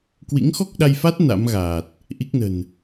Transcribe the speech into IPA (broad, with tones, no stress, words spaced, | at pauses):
kwḭ˧˥ŋxɔ˦˥k̚ɗa˧jfa˦˥t̚ na̰˧˥mɣaː˨˩t̚ | ʔi˦˥k̚nə̤˨˩n